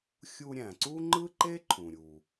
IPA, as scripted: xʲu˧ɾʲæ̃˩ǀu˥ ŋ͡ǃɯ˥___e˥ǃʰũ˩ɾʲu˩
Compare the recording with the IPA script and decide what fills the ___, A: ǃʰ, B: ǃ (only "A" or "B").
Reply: B